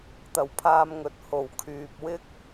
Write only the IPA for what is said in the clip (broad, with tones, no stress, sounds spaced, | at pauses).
t̪ ɐ˨˩ w pʰ aː˧ m ŋ ɵ˨˥ t̚ h o˨˩ w kʰ yː˨ p̚ w ɪ˥ k̚